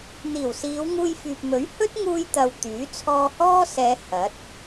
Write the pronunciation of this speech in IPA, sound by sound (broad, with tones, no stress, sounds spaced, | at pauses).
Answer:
n̪ iː˨˩ w s iː˨˧ w ŋ uː˧ j f yː˨ p̚ m ɵ˨˥ ɥ h ɵ˥ t̚ ŋ uː˧ j t̪ ɐ˨ w t̪ yː˨˥ t͡sʰ ɔː˧ h ɔː˥ s ɛː˨˧ h ɐ˨˥ t̚